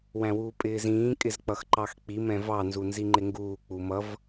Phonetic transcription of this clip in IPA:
wæ̃wuːpʼɪːzĩː kʼɪzk͡pʌxǃɑxk͡pi mɛ̃vɑ nzunziŋ͡ǃɪŋɡuː k͡pumʌv

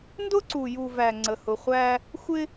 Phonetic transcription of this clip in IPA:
ndʊ˦ǀu˨ju˨væ˨ ŋ͡ǀə˨hʊ˨χʷæ˦ | xʷɪ˦

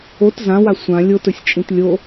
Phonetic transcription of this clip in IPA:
ot zãwa sʷã lʲotɵsʲt͡ʃʼĩt lʲo

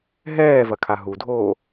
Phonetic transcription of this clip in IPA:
ɦɛːvɐkʰa ɦudʱoː

